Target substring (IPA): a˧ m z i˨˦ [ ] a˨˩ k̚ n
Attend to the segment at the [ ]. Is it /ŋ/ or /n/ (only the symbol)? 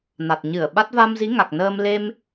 ŋ